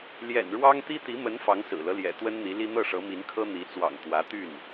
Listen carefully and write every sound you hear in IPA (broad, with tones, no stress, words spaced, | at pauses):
ljɛ̰˨˩nɻwɑ˥ŋt̪i˥ t̪i˧˥mə˧˥n fɑ˧˥ŋsɹ̩˨˩lɤ˦ ljɛ̰˨˩t̪wə˥nn̪i˧˥li˥ n̪ɤ˥˩ʂɤ˧˥mi˧˥nkʰɤ˥ n̪i˧˥t͡swɑ̰˨˩ŋ t̪wä˧˥t̪y˥˩n